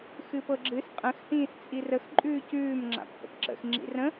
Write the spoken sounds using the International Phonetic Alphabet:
x ɨ p ɤ ɡ͡ǁ ɨ s qʼ ə̃ x h ĩː s t͡sʼ i r ə x ǃʼ ʉː c ʉː m ŋ͡ǁ a̰ p h ə̰ p ǁ ə̰ x ŋ͡ǁ ḭ r ə̃

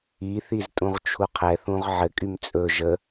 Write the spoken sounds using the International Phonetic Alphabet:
i θ i z tʼ ũ ʁ t͡ʃʰ u qʰ ɛ θ ũ ʁ ʕ ɘ kʼ y m t͡sʼ ɵ ʒ ə

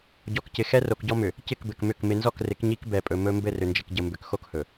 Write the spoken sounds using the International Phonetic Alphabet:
ɟ ɔ˨ k c ɪ˨ x ɛ˦ r o˨ k ɟ ɔ˦ m ʏ˨ | c ɪ˦˨ k b ɘ˨ k m ʏ˦˨ k m ɪ˨ n z ɔ˦˨ k r ɪ˨˦ k ɲ i˦ k b ɛ˨ pʼ ɵ˨ m ɵ˦ m b ɘ˦˨ r ʏ˨ n d͡ʒ ɘ˨ k ɟ ə˨ m b ʏ˨ k x o˦ k h ɵ˨

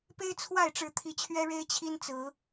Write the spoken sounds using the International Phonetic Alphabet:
p e˦ ɪ̯ t͡sʰ w a˥˨ ɪ̯ ʈ͡ʂ ɻ̩˨˦ t̪ʰ i˨˦ t͡ɕʰ ɥ ɛ˦ ɻ e˦ ɪ̯ t͡ɕʰ i˦ n t͡s ɹ̩˨˦

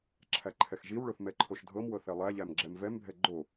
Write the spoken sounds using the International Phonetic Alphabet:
ǁʰ æ ǃʰ ɛ x ʒ i w ɭ o θ m ɛ ǃʰ o ʃ dʱ ɤ m w ɤ θ ɛ lˠ æ ʎ æ m ɡ͡ǁ ɛ m v ɛ m bʱ ɛ ɡ͡ǃ o

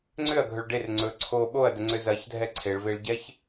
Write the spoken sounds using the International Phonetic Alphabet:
ŋ͡ǀ ʏ ɐ̯ ɡʱ ɵ ɭ ɖ e r ŋ͡ǀ ɵ ǀʰ o ɓ o ɐ̯ d ə ŋ͡ǀ ʏ z ɐ ç dʱ ɛ ǀʰ e ɭ v e ɭ ɟ ɛ ç

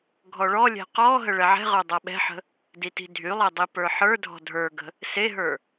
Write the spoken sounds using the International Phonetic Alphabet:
ɡʱ ɔ ɭ ɔ lʲ ɛ̤ q ɔ ɦ ə ɭ ɛ ʕ ɛ̤ ʁ ə˞ dˤ a ɓ ɛ̤ ħ ə̤ | d i t i̤ dʱ y lˠ ɛ dˤ i p ə˞ ħ ə˞ dʱ ɔ̤ dʱ ə˞ ɡ ə̤ | s e ɦ ə˞

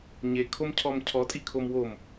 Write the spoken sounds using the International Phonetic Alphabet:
ɲ e kʰ o m cʰ ɔ m cʰ ɔ tʼ i kʰ o m w o m

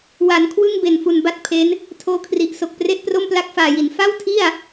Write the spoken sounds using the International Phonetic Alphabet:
w a˩˦ n kʰ w ɯ˥˩ ŋ b e˨˩ n f u˨˩ n b a˥˩ t̚ pʰ e˦˥ n | tʰ oː˧ kʰ r i˨˩ ʔ s o˨˩ k̚ p r e˥˩ ʔ p r o˥˩ m p l a˦˥ k̚ f aː˨˩ j i˩˦ n f a˥˩ w tʰ i˥˩ a̯

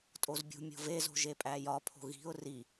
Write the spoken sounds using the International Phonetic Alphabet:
tʼ o z bʲ ṳ mʲ o̤ v e z o̤ ʒ e pʼ æ j ɒ pʰ o̤ ɣ i̤ ʊ̯ r i

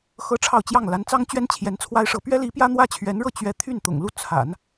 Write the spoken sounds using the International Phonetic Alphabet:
x ɤ˥ ʈ͡ʂʰ ɑ˥˧ ʊ̯ t͡ɕ j ɑ˥˩ ŋ l a˧˥ n t͡s ɑ˥ ŋ t͡ɕ ɥ ɛ˥ n t͡ɕʰ j ɛ˧˥ n t͡sʰ w a˥ ɪ̯ ʂ ɤ˧˥ p ɥ ɛ˥ l i˧˥ p j ä˥ n̪ w ä˥ t͡ɕʰ ɥ ɛ˧˥ n ɻ ɤ˥˩ t͡ɕ ɥ ɛ˥ t̪ʰ y˥˩ n t̪ ʊ̰˨˩ ŋ l u˥˩ t͡sʰ a̰˨˩˦ n

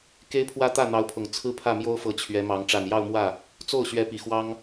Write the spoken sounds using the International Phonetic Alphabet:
k e˧˥ ɪ̯ pʰ w ä˧˥ t̪ ä˥˩ n̪ ɑ˧˥ ʊ̯ pʰ ʊ˨˩ ŋ t͡sʰ ɹ̩˥ pʰ ä˥˩ m j o˥ ʊ̯ f ɤ˧˥ t͡ɕʰ ɥ ɛ˧˥ m ɑ˧˥ ŋ ʈ͡ʂ a˨˩ n j ɑ˥˧ ʊ̯ m w ä˥˩ | t͡s o˥˩ ʊ̯ ɕ ɥ ɛ˧˥ p i˨˩ x w ɑ˥ ŋ

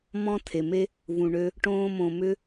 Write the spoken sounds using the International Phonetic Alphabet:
m ɔ̃˦ tʰ e˨ m e˦ | v ũ˨ ɳ ø˧ | ʈ õː˧ m õ˨ m ʏ˧

